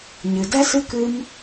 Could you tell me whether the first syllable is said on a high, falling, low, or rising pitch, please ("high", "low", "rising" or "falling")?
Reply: low